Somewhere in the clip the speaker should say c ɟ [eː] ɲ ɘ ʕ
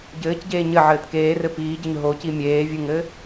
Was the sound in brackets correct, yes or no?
yes